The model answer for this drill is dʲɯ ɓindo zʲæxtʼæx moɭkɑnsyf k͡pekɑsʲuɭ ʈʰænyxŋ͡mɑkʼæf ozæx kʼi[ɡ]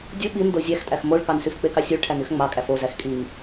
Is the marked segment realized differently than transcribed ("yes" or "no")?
yes